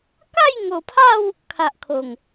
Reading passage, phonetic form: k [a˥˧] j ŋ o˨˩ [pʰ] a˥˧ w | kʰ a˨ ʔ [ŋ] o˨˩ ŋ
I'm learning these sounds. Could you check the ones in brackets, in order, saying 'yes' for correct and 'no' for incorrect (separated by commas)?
yes, yes, no